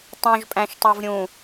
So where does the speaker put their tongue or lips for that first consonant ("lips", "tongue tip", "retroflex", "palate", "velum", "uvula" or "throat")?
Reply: tongue tip